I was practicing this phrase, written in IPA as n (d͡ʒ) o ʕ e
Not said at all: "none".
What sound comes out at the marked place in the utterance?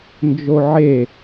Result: d͡ʒ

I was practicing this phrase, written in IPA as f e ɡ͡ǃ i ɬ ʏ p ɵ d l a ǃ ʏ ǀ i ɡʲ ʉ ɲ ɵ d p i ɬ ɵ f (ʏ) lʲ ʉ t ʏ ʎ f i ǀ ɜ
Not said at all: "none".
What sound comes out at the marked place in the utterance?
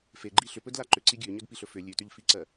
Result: ʏ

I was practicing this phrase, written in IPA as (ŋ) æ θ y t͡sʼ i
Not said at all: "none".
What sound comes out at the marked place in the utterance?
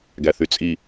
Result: ɡ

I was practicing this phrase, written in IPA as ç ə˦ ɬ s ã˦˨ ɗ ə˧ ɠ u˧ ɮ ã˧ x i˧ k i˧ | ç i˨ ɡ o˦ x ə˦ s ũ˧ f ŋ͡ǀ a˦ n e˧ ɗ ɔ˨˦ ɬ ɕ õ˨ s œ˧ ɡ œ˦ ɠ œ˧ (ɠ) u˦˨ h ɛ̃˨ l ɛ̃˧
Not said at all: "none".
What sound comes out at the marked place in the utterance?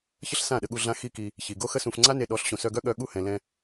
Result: ɠ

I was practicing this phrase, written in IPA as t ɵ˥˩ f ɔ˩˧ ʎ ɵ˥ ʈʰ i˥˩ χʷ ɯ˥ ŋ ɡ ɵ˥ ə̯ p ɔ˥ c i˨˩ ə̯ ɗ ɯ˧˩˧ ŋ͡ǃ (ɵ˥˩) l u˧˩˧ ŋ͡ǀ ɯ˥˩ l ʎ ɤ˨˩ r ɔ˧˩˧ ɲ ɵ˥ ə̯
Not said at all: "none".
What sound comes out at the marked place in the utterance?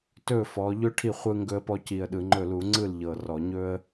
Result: ɵ˥˩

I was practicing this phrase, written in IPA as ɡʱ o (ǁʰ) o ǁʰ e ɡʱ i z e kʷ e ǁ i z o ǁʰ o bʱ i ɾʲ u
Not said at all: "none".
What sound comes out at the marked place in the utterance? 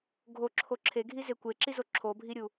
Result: ǁʰ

